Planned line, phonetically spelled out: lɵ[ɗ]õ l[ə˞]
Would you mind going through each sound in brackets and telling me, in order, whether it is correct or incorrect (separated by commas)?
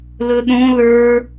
correct, correct